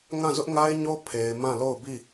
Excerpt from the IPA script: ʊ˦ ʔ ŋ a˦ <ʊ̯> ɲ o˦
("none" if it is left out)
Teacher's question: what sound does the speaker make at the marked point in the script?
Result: ɪ̯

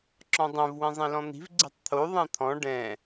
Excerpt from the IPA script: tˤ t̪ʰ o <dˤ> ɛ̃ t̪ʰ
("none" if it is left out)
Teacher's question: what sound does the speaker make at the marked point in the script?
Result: ðˤ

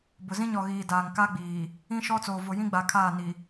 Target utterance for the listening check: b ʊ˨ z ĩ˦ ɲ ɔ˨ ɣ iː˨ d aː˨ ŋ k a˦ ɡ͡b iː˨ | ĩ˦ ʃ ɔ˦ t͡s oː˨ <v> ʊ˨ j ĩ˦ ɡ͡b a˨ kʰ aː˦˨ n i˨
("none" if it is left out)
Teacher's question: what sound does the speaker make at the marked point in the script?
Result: v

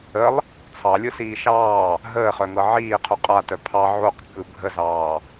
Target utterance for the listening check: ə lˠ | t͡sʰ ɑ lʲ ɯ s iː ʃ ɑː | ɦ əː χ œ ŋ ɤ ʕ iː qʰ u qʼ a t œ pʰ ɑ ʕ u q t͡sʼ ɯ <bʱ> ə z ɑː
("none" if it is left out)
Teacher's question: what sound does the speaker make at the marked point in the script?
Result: bʱ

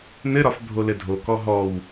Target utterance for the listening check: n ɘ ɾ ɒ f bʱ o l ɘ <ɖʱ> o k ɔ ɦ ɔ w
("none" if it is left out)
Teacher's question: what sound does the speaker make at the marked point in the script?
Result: dʱ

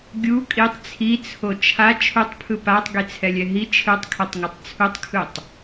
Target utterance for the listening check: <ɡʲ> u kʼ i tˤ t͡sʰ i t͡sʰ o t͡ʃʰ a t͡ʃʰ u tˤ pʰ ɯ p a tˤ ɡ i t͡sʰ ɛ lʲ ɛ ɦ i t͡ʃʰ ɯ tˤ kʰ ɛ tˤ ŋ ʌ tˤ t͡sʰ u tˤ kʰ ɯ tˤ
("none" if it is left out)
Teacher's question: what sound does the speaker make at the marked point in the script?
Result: ɡʲ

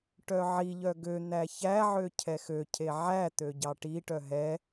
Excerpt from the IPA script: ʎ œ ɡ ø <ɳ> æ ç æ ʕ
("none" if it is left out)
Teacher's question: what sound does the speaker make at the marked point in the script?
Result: n̪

